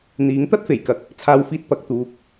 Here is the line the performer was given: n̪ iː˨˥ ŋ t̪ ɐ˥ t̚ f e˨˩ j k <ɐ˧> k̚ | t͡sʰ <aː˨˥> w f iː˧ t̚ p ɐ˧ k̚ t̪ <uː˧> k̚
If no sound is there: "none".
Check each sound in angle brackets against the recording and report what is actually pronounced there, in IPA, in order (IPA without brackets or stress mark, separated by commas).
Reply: ɐ˨, aː˧, uː˧